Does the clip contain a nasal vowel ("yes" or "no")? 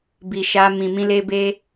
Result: yes